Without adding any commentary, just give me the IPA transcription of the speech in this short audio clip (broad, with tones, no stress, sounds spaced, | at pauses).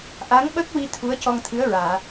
ʔ a˧˥ ŋ ɓ ə˦˥ k̚ w i˧ t̪ʰ u˧˥ ə̯ c ɔ˧ ŋ t̪ʰ ɨ˧˥ ə̯ ɹ aː˨˩˨